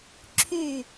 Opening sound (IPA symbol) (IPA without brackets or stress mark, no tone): ǁʰ